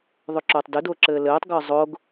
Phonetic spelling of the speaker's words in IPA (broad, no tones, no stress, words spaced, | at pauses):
ðˤʏǁʊːtˤdʏ dʊːǁɘːlɘːtˤ ɡə˞zˤʊːɡ